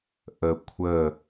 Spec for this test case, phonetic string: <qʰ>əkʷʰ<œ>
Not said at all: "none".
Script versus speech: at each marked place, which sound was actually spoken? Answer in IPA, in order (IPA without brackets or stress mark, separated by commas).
ʔ, ə